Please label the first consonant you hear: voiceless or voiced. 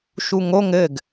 voiceless